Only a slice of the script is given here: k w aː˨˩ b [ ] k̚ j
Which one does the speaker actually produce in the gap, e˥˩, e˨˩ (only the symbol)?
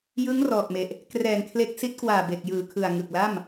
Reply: e˨˩